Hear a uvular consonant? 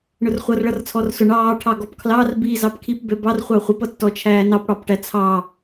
yes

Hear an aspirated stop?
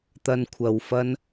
yes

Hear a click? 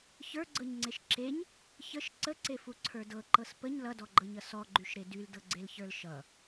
yes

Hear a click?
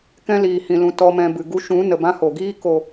no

